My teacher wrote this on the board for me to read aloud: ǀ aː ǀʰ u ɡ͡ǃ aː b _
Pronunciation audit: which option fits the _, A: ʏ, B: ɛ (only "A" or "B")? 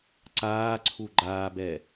B